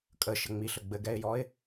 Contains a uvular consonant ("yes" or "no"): no